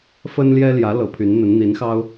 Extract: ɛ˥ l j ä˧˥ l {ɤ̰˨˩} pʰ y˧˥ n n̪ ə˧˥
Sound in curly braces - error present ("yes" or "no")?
yes